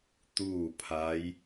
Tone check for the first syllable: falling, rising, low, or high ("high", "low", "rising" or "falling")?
falling